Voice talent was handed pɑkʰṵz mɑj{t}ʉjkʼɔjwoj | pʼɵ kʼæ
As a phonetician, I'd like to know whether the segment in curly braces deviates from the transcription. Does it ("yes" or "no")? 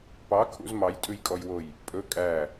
yes